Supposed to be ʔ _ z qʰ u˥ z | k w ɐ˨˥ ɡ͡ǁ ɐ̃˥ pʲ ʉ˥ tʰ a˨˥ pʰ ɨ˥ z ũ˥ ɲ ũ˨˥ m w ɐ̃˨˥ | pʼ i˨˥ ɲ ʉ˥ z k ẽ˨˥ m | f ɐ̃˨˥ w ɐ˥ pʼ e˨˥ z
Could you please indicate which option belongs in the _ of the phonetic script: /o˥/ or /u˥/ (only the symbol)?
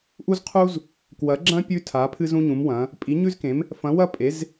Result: u˥